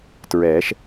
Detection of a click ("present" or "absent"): absent